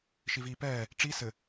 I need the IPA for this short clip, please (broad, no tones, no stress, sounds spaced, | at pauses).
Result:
ʃ i v iː p ɛː | ʈ͡ʂ i s ɘ